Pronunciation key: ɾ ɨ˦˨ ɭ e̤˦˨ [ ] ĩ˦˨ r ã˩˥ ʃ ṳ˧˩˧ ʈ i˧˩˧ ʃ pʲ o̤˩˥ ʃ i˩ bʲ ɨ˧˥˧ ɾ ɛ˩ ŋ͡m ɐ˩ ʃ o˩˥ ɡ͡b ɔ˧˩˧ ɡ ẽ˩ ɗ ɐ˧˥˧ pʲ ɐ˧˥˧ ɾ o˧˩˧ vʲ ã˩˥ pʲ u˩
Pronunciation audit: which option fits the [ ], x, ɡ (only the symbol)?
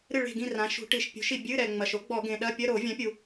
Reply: ɡ